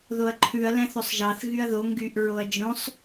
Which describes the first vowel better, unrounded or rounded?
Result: rounded